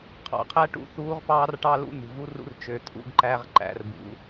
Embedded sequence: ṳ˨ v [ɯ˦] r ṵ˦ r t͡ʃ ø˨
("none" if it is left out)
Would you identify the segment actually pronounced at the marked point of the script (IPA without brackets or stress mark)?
u˦